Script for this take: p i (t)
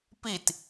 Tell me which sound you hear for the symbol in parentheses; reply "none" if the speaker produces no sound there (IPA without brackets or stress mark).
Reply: t